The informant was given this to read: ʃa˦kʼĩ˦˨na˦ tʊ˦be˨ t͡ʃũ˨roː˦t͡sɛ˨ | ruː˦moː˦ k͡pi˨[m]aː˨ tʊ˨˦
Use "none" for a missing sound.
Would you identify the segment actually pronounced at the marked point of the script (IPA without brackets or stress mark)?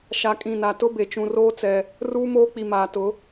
m